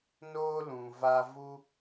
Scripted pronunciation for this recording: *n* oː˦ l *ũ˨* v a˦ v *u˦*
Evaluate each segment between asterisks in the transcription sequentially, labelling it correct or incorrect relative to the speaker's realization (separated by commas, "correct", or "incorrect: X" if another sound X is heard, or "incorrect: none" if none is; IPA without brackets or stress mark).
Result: correct, correct, correct